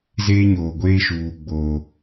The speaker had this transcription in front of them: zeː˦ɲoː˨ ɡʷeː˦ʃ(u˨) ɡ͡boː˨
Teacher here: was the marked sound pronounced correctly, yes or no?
no